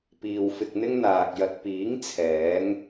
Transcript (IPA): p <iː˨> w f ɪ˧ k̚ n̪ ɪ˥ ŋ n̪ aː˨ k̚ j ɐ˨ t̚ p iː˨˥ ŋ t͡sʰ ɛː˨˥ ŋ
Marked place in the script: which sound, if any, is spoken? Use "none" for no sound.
iː˨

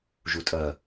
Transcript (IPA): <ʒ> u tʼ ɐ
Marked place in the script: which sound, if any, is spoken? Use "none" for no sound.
ʒ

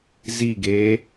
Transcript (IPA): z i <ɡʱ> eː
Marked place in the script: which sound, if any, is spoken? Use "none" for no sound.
ɡ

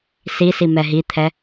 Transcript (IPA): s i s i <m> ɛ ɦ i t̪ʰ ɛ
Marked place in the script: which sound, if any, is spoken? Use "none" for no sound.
m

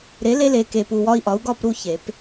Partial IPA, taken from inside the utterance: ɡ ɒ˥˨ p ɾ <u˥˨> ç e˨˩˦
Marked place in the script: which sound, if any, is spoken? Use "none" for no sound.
u˥˨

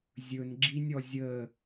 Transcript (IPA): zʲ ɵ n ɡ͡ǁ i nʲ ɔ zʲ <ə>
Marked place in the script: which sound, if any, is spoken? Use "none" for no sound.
ə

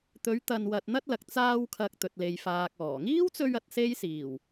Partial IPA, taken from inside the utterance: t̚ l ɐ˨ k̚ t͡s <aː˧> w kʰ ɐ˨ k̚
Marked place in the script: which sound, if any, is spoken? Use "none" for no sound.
aː˧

